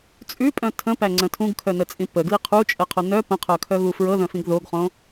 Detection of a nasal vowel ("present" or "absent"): present